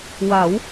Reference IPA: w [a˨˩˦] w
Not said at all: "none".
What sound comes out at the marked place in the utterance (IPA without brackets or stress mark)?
a˨˩˦